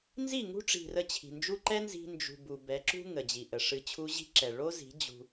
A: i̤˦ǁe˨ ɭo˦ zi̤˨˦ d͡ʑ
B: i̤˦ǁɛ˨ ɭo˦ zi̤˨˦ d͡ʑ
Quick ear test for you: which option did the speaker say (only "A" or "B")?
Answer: B